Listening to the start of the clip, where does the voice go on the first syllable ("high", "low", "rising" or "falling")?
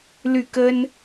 falling